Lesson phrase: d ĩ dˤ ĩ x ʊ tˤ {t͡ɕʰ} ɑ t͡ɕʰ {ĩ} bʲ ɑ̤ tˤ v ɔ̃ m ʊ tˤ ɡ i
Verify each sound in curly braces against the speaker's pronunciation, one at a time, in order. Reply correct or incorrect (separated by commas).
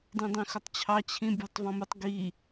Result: correct, correct